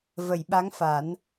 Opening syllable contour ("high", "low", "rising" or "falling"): low